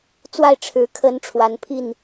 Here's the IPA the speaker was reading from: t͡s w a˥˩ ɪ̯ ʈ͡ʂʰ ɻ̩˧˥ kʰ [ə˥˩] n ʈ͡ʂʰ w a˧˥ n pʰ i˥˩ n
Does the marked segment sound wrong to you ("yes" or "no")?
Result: yes